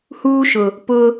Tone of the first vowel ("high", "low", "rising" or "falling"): high